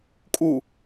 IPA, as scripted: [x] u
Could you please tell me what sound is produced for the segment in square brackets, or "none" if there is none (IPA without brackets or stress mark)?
kʼ